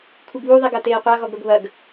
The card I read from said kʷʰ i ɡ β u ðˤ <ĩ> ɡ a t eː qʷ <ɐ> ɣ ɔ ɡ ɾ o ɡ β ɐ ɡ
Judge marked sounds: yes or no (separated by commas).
no, no